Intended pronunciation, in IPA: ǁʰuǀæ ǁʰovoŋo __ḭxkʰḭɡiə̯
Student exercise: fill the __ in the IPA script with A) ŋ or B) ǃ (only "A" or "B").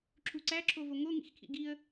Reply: A